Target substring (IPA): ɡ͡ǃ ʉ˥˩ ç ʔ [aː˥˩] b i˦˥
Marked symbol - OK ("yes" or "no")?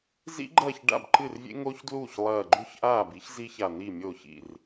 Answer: yes